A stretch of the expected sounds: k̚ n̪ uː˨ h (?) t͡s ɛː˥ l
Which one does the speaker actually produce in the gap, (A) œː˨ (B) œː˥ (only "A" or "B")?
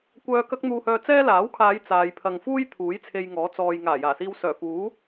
A